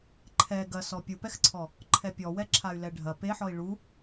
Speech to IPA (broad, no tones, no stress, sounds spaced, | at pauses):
ǃʰ ɛ ɡ ɐ s ɔ pʲ u p ɛ x ǀʰ ɔ | ǃʰ ɛ pʲ ɔ w ɛ ǁʰ a y̯ l ɛ ɖʱ ɐ p e ħ ɔ i̯ ɭ u